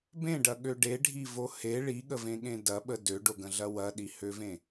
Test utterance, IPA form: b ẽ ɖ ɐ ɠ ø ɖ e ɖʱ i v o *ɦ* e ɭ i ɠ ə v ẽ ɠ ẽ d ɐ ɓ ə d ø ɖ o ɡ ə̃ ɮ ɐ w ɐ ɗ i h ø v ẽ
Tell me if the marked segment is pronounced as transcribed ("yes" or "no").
no